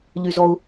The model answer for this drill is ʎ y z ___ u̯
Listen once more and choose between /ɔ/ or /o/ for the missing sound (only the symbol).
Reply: ɔ